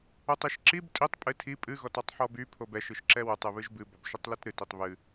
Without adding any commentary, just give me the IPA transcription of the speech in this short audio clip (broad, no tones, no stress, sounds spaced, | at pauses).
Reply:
o tˤ i ʃ ǁ i b tʼ i tˤ pʼ ɨ tʰ i pʼ ɨ ɣ ɔ t ɔ tˤ ħ ɔ b y pʰ o b ɛ ʃ ɨ ʃ ǁ ɛ w ɵ tˤ ɨ β ɨ ʒ b ɨ b ɔ b ʃ ɨ tˤ l i t ɾ ɨ t i tˤ β ɨ